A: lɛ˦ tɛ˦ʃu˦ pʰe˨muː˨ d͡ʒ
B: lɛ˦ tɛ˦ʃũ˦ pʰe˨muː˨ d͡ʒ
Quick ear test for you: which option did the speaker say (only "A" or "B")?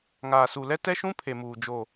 B